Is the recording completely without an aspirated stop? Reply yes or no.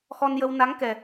yes